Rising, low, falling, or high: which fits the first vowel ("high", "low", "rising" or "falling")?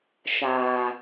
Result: low